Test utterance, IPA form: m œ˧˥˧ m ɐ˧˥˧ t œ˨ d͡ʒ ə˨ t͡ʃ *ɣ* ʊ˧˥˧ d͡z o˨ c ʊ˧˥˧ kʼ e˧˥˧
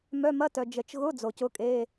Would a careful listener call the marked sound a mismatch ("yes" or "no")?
no